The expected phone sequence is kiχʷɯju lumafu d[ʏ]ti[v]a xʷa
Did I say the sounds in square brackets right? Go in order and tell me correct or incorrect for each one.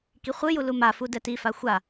incorrect, incorrect

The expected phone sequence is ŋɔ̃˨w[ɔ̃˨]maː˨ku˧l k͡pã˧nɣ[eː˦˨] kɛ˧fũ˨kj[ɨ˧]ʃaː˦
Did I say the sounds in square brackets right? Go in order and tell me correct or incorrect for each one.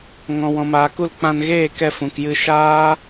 correct, correct, correct

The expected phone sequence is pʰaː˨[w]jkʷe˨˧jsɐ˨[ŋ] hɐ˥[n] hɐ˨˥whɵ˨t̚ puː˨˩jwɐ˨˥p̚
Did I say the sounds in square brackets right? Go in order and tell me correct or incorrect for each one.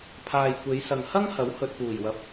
incorrect, correct, incorrect

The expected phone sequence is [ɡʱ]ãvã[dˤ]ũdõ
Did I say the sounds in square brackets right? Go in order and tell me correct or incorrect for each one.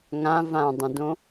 incorrect, correct

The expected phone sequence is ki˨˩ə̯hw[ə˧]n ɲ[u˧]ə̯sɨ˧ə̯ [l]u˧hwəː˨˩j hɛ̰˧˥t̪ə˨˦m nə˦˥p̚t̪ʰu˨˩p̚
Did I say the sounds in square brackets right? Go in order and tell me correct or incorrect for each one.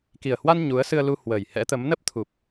incorrect, incorrect, correct

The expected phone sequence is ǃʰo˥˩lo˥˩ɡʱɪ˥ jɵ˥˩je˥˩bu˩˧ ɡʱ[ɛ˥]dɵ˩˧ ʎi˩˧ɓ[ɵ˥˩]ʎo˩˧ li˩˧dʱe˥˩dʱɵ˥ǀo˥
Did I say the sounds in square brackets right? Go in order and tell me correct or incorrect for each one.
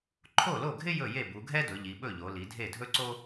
correct, correct

